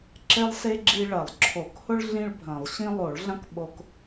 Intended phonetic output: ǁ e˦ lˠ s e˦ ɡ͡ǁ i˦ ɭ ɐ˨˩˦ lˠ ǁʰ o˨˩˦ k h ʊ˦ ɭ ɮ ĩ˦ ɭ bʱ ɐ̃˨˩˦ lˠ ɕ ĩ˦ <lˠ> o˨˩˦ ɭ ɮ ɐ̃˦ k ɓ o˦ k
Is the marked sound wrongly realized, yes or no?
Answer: no